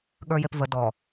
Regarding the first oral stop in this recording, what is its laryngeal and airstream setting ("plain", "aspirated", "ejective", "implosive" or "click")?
implosive